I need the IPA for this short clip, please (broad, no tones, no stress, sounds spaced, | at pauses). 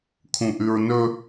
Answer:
kʰ ũ ʔ ʉ ɹ n ɵ